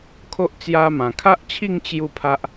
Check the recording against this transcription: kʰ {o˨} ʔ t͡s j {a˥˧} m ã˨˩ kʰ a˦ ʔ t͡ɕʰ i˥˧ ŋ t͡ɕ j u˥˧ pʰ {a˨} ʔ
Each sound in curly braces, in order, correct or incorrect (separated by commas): incorrect, incorrect, incorrect